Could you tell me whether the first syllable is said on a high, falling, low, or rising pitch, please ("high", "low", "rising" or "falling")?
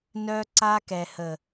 high